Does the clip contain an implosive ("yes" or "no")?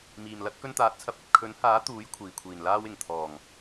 no